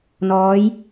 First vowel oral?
yes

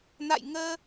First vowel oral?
yes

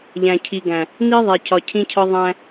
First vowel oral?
no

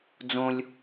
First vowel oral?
no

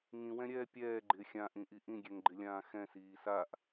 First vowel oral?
no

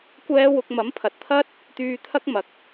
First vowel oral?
yes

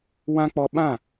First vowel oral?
no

